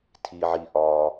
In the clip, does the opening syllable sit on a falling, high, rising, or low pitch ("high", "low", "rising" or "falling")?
low